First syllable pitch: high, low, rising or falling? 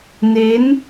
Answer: rising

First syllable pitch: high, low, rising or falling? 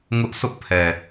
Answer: high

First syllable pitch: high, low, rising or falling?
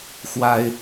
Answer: high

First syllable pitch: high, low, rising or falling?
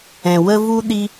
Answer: low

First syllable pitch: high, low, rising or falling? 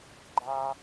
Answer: high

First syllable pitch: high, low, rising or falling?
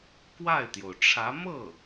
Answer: falling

